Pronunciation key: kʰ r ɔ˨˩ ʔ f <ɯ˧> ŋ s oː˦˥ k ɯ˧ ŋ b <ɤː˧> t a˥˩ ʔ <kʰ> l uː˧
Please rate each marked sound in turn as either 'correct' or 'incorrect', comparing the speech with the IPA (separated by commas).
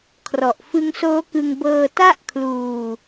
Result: incorrect, correct, correct